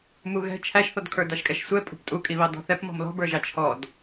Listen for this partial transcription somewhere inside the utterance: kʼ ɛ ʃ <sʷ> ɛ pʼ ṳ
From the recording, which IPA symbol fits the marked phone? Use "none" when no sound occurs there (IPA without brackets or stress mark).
sʷ